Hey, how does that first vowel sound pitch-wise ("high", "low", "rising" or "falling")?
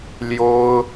high